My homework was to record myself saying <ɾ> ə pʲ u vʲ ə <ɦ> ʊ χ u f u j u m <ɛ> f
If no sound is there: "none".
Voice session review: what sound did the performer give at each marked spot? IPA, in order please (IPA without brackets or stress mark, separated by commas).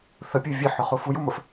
θ, ħ, ə